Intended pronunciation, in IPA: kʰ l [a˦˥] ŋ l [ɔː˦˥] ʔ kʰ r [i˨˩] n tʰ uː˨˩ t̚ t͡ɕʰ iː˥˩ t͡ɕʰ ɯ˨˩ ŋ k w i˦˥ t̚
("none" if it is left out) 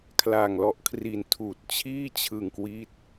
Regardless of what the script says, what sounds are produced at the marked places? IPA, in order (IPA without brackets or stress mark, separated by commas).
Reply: a˨˩, ɔ˦˥, i˨˩